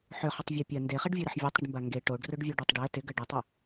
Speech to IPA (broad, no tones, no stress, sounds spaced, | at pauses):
ħ ʏ χ ʏ tˤ vʲ e pʲ ɐ n d e χ e ɖ vʲ u ɾ ɪ ħ vʲ e tˤ ɾ ɪ ɖ m b a ŋ ɡ e ʈ o ɖ r ʊ ɖ vʲ o ɖ u tˤ ɖ ɛ t ɪ ɡ ɐ ɖ ɪ tˤ o